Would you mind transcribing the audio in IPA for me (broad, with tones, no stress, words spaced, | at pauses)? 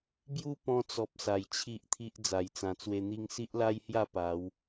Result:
bju˦pɔ̃˧t͡sɔ˨p̚ sa˨˩jt͡ɕʰi˦ʔt̪ʰi˦ʔ d͡za˨˩jt͡sã˨˩t͡swe˧ n̪i˧ŋsi˦ʔla˦jhja˥˧ pa˨˦w